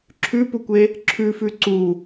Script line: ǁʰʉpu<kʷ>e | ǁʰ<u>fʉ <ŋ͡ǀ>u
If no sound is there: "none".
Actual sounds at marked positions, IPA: kʷ, ʉ, ǀ

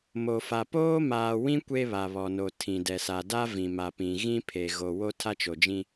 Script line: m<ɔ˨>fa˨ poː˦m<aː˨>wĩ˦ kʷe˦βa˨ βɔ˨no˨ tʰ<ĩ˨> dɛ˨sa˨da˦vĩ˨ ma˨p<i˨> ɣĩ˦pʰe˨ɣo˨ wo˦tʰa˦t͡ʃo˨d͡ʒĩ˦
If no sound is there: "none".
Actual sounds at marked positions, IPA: o˨, aː˨, ĩ˨, ĩ˨

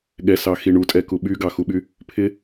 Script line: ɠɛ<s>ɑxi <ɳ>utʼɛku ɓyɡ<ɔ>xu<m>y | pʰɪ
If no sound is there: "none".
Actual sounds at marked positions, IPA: s, ɳ, ɑ, ɓ

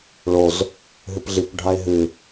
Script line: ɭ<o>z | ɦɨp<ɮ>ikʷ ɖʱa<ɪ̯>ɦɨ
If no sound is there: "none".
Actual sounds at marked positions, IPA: o, ɮ, ɪ̯

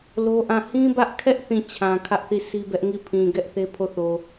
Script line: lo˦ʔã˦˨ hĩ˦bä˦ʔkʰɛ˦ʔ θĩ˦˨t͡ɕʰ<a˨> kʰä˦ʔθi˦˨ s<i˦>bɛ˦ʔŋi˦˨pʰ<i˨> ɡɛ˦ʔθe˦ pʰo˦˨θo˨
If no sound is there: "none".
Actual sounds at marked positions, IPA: ã˨, i˦, ĩ˨

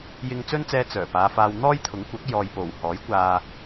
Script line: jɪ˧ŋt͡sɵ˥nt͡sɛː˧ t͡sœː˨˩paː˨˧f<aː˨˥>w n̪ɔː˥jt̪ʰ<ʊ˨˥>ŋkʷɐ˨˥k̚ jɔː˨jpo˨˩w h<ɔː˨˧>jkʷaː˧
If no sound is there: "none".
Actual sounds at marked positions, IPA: aː˧, ʊ˨˥, ɔː˨˥

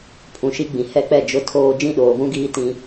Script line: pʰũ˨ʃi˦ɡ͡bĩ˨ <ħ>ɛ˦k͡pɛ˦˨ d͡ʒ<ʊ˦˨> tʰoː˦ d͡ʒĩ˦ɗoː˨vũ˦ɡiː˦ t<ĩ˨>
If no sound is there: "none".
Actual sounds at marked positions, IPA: h, ʊ˦˨, ĩ˦

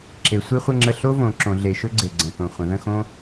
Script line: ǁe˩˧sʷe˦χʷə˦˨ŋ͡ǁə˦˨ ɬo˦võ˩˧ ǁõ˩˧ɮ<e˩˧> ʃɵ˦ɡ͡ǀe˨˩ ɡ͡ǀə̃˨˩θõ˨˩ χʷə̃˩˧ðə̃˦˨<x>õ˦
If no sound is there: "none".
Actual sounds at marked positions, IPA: e˩˧, x

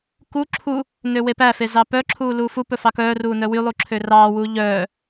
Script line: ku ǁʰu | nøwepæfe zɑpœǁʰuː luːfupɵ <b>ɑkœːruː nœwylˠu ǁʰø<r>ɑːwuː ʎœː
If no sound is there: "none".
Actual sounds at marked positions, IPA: f, r

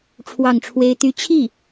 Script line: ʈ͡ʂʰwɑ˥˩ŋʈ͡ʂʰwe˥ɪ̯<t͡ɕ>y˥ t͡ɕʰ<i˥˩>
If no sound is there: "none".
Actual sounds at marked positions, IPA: t̪, i˥˩

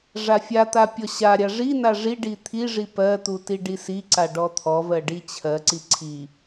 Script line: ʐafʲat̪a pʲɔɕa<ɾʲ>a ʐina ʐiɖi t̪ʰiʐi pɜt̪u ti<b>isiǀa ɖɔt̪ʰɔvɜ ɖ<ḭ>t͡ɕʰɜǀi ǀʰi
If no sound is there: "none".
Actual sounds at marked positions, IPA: ɾʲ, ɖ, i

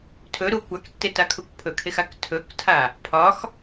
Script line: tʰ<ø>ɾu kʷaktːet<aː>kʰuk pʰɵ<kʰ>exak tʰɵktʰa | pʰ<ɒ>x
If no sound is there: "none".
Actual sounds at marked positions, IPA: ɵ, a, kʰ, ɒ

